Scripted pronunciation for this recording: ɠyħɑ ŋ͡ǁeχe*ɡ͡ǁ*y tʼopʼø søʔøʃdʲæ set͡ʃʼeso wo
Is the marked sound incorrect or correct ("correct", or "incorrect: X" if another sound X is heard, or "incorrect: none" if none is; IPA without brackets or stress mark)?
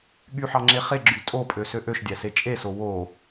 correct